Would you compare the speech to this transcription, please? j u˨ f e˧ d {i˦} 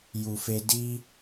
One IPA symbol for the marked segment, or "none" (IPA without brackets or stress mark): i˦